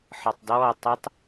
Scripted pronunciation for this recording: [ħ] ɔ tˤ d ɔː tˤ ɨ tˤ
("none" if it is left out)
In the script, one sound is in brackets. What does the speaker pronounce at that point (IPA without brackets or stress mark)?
ħ